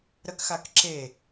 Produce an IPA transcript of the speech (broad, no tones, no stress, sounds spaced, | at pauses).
ɾ ə k x a k ǁ e